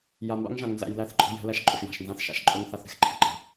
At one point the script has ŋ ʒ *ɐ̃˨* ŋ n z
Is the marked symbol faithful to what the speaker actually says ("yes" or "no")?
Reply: no